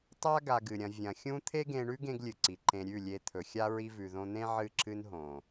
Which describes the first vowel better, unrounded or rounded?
unrounded